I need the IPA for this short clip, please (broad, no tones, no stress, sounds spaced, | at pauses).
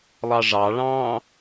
lˠ ɑ ʐ ɑ ɭ ɑ̃ː